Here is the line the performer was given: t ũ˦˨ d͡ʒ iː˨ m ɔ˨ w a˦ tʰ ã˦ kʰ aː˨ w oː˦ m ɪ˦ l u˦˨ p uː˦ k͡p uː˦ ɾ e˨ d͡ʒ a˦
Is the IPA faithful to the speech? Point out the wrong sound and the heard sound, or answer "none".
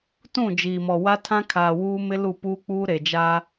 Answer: oː˦ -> uː˦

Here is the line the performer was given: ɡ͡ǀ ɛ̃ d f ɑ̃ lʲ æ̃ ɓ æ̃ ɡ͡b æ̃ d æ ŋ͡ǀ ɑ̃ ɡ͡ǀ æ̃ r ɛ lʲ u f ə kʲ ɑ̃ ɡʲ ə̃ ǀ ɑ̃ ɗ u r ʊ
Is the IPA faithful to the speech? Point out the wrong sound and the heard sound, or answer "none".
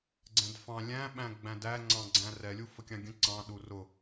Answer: none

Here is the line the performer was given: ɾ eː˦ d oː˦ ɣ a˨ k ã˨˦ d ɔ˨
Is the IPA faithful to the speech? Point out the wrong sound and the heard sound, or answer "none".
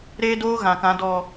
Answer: a˨ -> ã˨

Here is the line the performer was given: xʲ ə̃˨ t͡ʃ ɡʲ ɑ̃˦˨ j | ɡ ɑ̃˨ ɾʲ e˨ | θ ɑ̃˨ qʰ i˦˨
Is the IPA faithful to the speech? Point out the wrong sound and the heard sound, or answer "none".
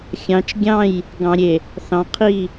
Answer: ə̃˨ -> ɑ̃˨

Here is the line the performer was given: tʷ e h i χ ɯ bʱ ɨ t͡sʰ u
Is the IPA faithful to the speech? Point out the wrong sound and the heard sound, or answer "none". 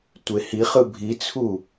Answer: ɨ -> i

